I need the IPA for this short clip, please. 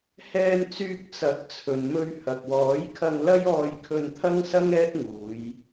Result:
hɛː˧nt͡syː˧k̚ t͡sɐ˨˥k̚ t͡sʰɵ˨nmɵ˧ɥ hɐ˨k̚wɔː˨˥jkʰɐ˧ŋ lɐ˥jɔː˧jkʰɵ˧nt̪ʰɐ˥ŋ sɐ˥ŋɛː˥t̚ŋuː˨˧j

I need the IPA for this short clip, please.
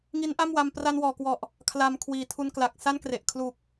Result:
ŋi˦˥nʔa˥˩mwa˧m pra˧nwɔː˨˩kwɔ˨˩ʔ | kʰla˧mkʰwiː˨˩ tʰu˧n kla˨˩k̚sa˥˩nkre˨˩ʔ kʰlu˨˩k̚

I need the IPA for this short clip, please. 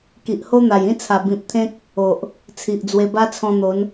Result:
ki˨ʔho˦n̪a˨˩j ĩ˦t͡sʰa˨˩ bĩ˨p̚t̪ʰẽ˦k̚ | o˨ʔ | t͡sʰi˨ʔd͡zwe˧ ba˦t͡sʰɔ̃˧n̪o˨˦n

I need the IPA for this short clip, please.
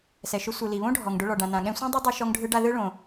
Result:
sɛ˩ʃʊ˧sʷɯ˩ li˩βõ˥ɖʱɔ˩ŋ ɖʊ˧ɭɔ˩ ɖã˩nã˩ɠɛ̃˧sʷɛ̃˥ dˤi˥dˤɯ˧ ʃɔ˧ŋɖʱɯ˧ɖa˧ ðɯ˥ɭõ˩

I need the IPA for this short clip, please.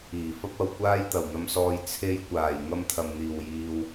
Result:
iː˨˩fɐ˥p̚ɐ˧w kʷaː˥jt̪ɐ˨˩wn̪ɐ˧msɔː˧j t͡sʰe˧jkʷaː˨˩jŋɐ˧m t̪ʰɐ˨mn̪iː˨˩wjiː˨w

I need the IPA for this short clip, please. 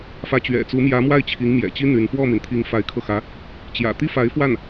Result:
fä˧˥t͡ɕɥɛ̰˨˩t͡su˧˥ mjä˧˥mwa˥˩ɪ̯ t͡ɕʰi˧˥ŋmjɛ̰˨˩t͡ɕi˥ n̪y˧˥n fwɔ˥˩mi˩nt̪ʰi˧˥ŋ fa˧˥ɪ̯kʰɤ˧xä˧˥ | t͡ɕjä̰˨˩t̪i˥fa˧˥ɪ̯fwa˥˩n

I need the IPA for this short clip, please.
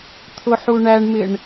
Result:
t̪ʰʊħuɳæɳmɪɳ

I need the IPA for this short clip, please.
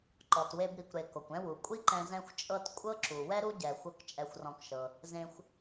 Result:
ǃɔ˩twe˧bɾi˩kʷɾe˩ ko˩kʷɛ̃˥wu˩ kʷʼi˥ǃɛ̃˧ zɛ̃˥xʷt͡ʃʼɤ˥t kʷʼɤ˥ǁu˩ wɛ˥ɾu˥ɟɛ˩xʷɤ˧k t͡ʃʼɛ˧xʷrɔ̃˧kʃɤ˩ | zẽ˧xʷ

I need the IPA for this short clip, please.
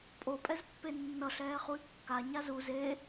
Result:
pʼopʼɛzpːe nːʌɬɛːχuy̯ kːaɲa zu ze

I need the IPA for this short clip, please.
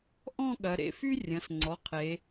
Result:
ʔɔ̃˥˧ɠɐ˩˧ɾḛ˩˧˩fy˥ rʲɐ̃˩˧˩sŋ͡ǀɔ˩˧˩qʰe˩˧

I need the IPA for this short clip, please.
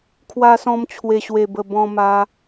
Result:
kʰwa˧sɔ̃˧m t͡ɕʰwe˨˩ɕwe˨˩bə˨˩ bɔ̃˧ma˧

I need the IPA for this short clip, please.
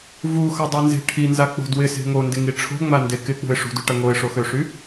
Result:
vuxɐdˤinze̤ ʈʰinzak͡po̤ dwɪse̤ ŋondɪŋi ʈ͡ʂʰo̤ŋ͡mande kɪk͡pṳɪ̯ ʂṳdyʈɐ ŋoɪ̯ʂoxøʂy

